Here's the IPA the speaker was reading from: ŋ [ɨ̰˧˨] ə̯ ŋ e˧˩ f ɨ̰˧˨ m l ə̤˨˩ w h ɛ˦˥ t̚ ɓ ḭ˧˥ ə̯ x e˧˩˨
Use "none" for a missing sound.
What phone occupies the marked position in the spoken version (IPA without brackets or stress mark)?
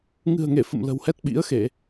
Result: ɨ̤˨˩